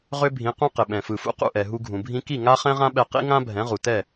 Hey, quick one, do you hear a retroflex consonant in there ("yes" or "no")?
no